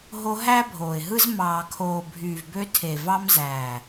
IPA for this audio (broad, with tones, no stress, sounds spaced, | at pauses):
ɦ o˧ ɦ æ˦ bʱ oː˨ ɪ̯ ɦ ɯ˦ z m ɑː˨ kʰ oː˨ bʱ yː˨ v b ø˧ tʰ e˨ v ɑ˧ m z æː˨